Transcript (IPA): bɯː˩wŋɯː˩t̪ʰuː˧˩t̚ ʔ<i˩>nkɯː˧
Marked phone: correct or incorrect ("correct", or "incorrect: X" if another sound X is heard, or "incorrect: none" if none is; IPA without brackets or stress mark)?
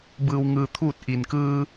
correct